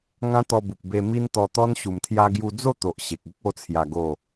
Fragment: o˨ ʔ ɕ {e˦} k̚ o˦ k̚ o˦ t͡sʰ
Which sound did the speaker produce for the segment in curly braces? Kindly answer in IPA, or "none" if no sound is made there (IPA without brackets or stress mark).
e˨